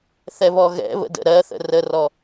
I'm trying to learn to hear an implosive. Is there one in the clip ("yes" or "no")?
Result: no